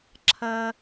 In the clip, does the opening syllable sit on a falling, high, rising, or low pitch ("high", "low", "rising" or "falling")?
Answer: low